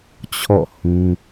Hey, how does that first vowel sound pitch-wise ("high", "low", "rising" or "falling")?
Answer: falling